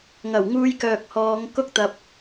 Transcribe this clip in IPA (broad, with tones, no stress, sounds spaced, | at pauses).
ŋ ɐ˨˩ w ŋ uː˧ j k œː˨ k̚ h ɔː˨˧ ŋ k ʊ˥ k̚ t̪ ɐ˧ p̚